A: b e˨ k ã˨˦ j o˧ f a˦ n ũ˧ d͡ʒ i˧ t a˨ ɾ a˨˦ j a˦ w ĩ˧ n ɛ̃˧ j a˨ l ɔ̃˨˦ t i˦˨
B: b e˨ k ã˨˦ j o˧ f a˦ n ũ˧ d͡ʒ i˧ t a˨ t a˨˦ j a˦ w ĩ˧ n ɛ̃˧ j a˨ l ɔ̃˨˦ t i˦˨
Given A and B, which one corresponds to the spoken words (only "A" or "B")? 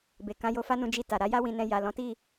A